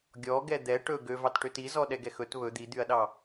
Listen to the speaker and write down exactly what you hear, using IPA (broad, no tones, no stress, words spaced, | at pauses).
ɡʲɔɡɛ d̪ɛ ʈɵ ɡøvɑtʈøt izɔ ɗɛɡɛxɵt βɵ d̪id̪yɐ̯ɗɑ